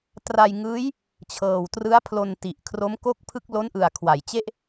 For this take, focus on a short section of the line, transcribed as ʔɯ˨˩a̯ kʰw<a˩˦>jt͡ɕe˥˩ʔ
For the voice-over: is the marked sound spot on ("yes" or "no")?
yes